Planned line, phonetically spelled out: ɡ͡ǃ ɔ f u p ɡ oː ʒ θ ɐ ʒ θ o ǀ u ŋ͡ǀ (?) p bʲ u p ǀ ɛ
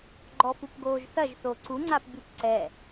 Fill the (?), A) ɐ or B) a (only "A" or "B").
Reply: B